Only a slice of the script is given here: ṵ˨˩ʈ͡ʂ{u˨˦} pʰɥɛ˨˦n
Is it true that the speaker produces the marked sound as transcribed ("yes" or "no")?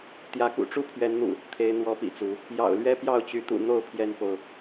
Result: no